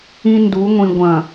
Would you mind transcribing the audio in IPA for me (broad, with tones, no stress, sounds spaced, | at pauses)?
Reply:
ĩ˦ n d u˨˦ ŋʷ ĩ˨ ɡʷ ɐ̃˨